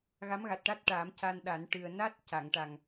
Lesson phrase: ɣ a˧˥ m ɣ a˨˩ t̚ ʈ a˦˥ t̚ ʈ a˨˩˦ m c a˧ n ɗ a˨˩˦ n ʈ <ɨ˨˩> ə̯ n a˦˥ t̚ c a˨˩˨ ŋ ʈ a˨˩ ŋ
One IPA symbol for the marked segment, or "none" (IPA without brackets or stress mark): ɨ˨˩